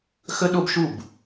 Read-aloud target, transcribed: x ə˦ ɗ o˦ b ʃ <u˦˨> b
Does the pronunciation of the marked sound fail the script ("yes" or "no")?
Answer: no